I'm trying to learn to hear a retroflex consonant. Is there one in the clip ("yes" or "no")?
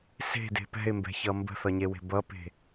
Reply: no